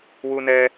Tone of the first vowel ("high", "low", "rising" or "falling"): high